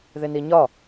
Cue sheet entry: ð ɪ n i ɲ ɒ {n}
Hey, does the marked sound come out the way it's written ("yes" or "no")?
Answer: no